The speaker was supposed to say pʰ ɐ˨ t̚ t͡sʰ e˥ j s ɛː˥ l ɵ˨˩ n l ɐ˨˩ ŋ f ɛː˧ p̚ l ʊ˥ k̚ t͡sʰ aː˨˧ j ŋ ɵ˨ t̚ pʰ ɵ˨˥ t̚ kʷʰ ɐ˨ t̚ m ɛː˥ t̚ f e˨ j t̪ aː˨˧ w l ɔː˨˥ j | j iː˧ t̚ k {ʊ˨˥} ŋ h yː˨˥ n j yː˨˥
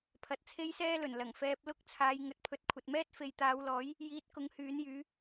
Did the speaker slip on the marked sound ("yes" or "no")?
no